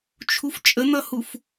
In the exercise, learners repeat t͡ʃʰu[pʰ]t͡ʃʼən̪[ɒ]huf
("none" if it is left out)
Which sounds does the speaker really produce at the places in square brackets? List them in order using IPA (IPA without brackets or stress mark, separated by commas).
f, ʌ